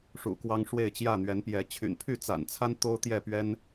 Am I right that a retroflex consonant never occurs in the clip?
no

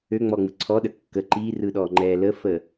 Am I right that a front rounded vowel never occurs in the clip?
no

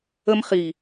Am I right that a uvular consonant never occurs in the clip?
no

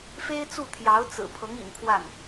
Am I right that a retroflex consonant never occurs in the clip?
yes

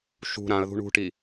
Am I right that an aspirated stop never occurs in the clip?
yes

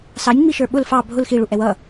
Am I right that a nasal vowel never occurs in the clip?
yes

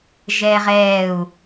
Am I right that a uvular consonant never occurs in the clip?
no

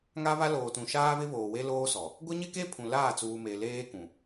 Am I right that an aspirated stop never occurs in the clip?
no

